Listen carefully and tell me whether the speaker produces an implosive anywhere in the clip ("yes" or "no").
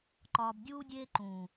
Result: no